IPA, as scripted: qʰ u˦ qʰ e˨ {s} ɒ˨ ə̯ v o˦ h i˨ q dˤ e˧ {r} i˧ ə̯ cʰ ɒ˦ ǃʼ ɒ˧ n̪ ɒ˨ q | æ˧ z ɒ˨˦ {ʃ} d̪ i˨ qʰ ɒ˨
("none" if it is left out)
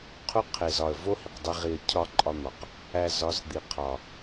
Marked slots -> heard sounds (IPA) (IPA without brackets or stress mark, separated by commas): z, ʁ, z